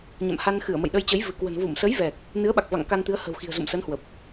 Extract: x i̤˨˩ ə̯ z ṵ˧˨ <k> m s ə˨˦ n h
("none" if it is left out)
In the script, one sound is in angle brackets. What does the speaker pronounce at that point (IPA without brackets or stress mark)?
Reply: none